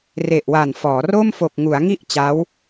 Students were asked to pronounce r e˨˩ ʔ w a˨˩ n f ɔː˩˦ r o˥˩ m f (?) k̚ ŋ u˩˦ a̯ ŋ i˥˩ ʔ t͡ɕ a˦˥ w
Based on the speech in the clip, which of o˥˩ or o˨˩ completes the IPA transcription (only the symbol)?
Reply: o˨˩